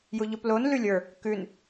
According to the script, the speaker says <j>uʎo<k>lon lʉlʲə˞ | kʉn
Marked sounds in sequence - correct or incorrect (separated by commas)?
correct, incorrect